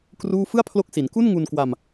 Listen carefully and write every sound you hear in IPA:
k r uː˥˩ f ɯ˥˩ a̯ pʰ l o˦˥ k̚ s i˩˦ n k u˥˩ n ŋ u˧ n k w a˧ m

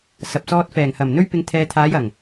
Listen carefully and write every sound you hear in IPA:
s ɐ˨ p̚ s ɔː˧ t̚ f ɛː˨˩ ŋ h ɐ˨˩ m n̪ ɵ˧ ɥ p ɪ˨˧ ŋ t̪ʰ ɛː˨ t̪ʰ aː˨˧ j ɐ˨˩ ŋ

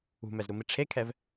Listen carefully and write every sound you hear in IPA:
ṳ m ɛ z ɾ u m i ʈ͡ʂʰ e kʰ ɛ v

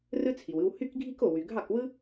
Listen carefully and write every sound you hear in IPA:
r ɯ˥ t͡sʰ i˩ w ɯ˧ w h y˥ k ɡʱ i˥ k o˩ w y˩ ɡʱ ɑ˥˩ k w ɯ˥

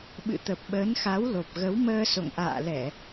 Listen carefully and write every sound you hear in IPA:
ɓ ɨ̰˧˨ t̪ ə˨˩ p̚ ɓ əː˨˦ n x a˨˦ w l o˨˩ p̚ ɣ ə˨˦ w m əː˧ s o̰˧˨ ŋ ʔ a̰ː˧˨ l ɛ˧˩˨

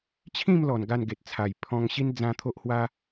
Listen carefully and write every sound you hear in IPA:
t͡ɕʰ ĩ˥˧ m l ɔ˨˩ n ɡ a˥˧ n ɡ e˨ t̚ t͡sʰ a˨˩ j pʰ ɔ̃˧ ŋ ɕ i˦ n d͡z ã˦ t̪ʰ o˦ ʔ h w a˦

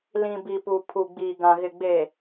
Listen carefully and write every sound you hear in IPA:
l ĩ˨ b i˨ p u˨ pʰ u˨ ɡ͡b iː˨ ɡ ã˨ ɣ ɪ˨ ɡ͡b e˨

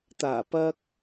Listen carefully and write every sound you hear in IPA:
t̪ aː˨˩ p ɐ˧ k̚

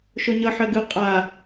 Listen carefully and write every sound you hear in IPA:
ʃ o ɲ ʌ ħ ɜ ɡ ɯ qʼ a

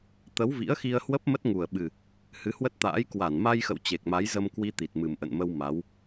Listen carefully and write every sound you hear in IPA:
t̪ ə˨˦ w v ḭ˧˥ ə̯ x i˧ ə̯ h w ə˦˥ p̚ m ə˦˥ t̚ ŋ u˨˩ ə̯ ɓ ɨ˨˩ | h ɨ˨˦ h w ə˦˥ t̚ t̪ a̰ː˧˥ j k w a˧˩ n m a˧ j x ə̰˧˨ w t͡ɕ e˨˩ k̚ m a˨˦ j z ə˧ m k w i˧ t̪ i˨˩ t̚ m ɨ˨˩ m ʔ ə̰˧˨ n m ə˧ w m a˨˦ w

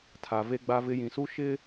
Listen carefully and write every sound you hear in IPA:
tʰ a˨ v e˦ ɡ͡b a˦ v ɪ˦ j ĩ˨ s u˦ ʃ ɪ˦

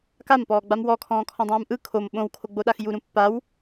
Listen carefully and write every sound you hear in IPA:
k a m p ɔː ɡ͡b a m w ɔ kʰ ɔ̃ː kʰ ɔ̃ dˤ ũː m ʔ ɯ kʰ o m ɓ õ w kʰ o ɡ͡b o ɗ a x j u ɾ ũ pː a w

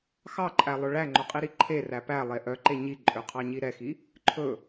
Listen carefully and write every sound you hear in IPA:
x ɑ ǃʼ æ lˠ ɵ ɭ æ ŋ͡ǃ o qʼ i ɾ i ǃʰ e r æ p æ lˠ e ʔ œ ǃ e ɲ i ǃʼ ø qʰ ɑ ɲ i ɾ ɛ x i | ǃʰ ɵ

